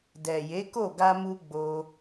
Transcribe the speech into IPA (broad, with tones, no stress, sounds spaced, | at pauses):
d ɛ˨ j e˨˦ k o˦˨ ɡ a˧ m u˧ ɡ͡b o˧